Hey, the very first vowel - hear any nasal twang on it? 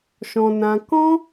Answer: yes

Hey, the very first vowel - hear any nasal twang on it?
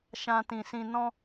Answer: yes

